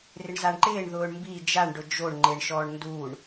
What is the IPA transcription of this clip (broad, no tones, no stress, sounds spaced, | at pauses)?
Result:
r ɪ ɳ z a ɳ ǃ ɪː ɳ ð ʊː ɳ m b i d͡ʒ a ɳ ɖ ʊ d͡ʒ o ɳ ŋ͡ǃ e ɳ ʃ ɔː ɳ n d uː ɳ